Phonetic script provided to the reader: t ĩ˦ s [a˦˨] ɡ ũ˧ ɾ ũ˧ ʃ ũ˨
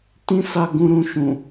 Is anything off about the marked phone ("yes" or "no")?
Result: no